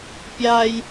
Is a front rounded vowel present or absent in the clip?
absent